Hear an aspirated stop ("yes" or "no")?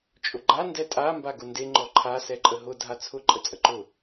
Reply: yes